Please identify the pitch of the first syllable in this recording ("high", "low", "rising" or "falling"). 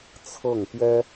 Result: falling